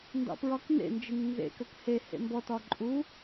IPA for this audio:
n d ɑ̰ p ɹ ɒ k n ḛ n d͡ʒ i ŋ n z ḛ k ə k h e h ḛ m b ɔ t ɒ ǃʼ u

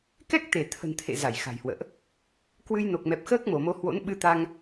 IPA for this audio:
k ɛ˦˥ k̚ t̪ e˧˩ t̪ʰ ə̤˨˩ n t̪ʰ ḛ˧˨ z a˧˩ j x a̤˨˩ j h w ə̰ː˧˨ ʔ | k w ɨ˧ j n o˨˩ k̚ m ɛ˨˩ p̚ x əː˦˥ k̚ m o˧˩ m o˨˦ h w o̰˧˥ n ɓ ɨ˧ t̪ a˧ ŋ

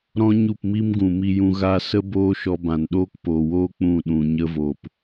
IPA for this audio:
ɾ ɔ̃˦ ɲ u˦˨ p m i˦ m ɡ ũ˨ m i˧ j ũ˧ ɣ a˧ s ə˦ b oː˦ ʃ ɔ˧ b ã˨ n ɗ oː˦ k p oː˨ w oː˦ k͡p ũ˦˨ ɗ ũ˨ ɲ ə˧ v o˨ p

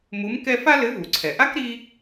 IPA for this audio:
m u˧˥ m k ɛ˧ f a˥ l ɘ˧˥ v u˩ ǀʰ ɛ˩ ʔ a˥ k ɾ i˥

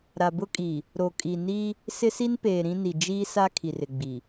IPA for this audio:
ɾ a˨ b ʊ˦ kʼ i˨ | ɾ o˨ kʼ i˨ n i˦ | s ɪ˦ s i˦ n p eː˨ ɾ ĩ˦ n i˨ d͡ʒ iː˦ s a˦ kʰ i˨ r ɪ˨ ɡ͡b i˨

